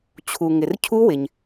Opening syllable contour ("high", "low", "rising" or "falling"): low